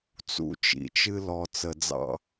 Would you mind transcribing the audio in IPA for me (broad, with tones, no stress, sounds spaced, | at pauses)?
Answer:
t͡s ṵ˦ t͡ʃ ḭ˨ t͡ʃ ɨ˦ l ɔ˨ t͡s ə˨ d͡z ɑ̰˦